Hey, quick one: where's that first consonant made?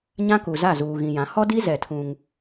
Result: palate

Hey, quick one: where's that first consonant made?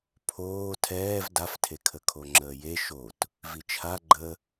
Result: lips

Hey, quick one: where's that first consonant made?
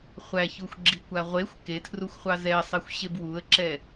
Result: uvula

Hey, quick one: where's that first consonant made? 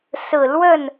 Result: tongue tip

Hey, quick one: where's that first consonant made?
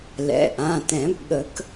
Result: tongue tip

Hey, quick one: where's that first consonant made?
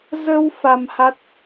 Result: tongue tip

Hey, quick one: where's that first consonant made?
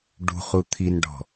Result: retroflex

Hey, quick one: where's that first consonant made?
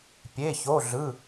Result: lips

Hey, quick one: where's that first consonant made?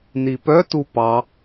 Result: tongue tip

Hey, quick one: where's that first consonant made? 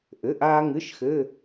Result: throat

